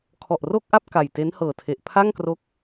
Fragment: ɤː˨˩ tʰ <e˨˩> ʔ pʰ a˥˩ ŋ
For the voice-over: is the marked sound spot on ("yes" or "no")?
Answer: yes